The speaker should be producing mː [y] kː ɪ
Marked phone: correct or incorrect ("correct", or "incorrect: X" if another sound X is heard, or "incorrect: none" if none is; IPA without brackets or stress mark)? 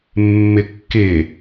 incorrect: ɪ